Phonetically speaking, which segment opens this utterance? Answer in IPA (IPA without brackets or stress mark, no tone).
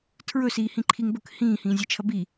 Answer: tʰ